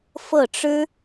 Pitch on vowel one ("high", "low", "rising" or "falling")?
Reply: falling